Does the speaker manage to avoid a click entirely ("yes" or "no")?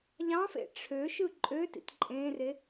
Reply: no